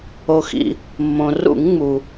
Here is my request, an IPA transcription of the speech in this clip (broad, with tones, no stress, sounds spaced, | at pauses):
o˩ x ḭ˩ | mː õ˩ r ṵ˧˩˧ ŋ ŋ͡m u˩